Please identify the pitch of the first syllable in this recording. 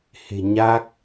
low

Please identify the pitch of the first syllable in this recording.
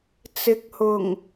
rising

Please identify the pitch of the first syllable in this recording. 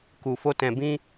low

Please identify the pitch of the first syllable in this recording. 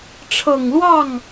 low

